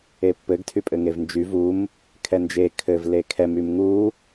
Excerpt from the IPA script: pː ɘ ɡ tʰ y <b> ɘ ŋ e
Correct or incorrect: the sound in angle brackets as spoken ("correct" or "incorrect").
incorrect